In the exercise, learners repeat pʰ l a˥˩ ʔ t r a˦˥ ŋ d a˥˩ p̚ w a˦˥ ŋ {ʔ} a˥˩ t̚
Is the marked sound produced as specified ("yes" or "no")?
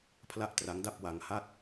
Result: no